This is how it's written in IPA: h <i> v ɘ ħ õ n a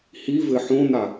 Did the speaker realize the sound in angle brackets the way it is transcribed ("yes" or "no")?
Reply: yes